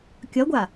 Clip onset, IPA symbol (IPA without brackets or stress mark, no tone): kʲ